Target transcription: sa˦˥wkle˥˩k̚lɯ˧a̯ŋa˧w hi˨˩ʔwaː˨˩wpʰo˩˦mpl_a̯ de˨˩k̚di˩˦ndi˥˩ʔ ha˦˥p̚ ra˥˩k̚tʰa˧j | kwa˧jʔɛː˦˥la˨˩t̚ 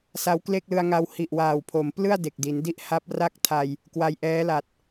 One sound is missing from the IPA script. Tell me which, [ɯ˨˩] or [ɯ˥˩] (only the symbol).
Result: ɯ˥˩